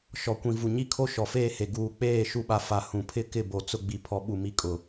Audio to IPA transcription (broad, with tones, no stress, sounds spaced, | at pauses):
ʃ ɔ˨ kʷ ĩ˨ v u˨ ɲ i˦ kʰ o˦ ʃ ɔ˨ f eː˦ h e˨ ɡ uː˨ k͡p eː˦˨ ʃ u˨ ɓ a˨ f a˨ h ũ˨ pʰ ɪ˦ k ɪ˦˨ b o˨ t͡s ʊ˨ ɡ͡b i˨ pʰ ɔ˨ ɓ u˨ m i˨ kʼ ʊ˨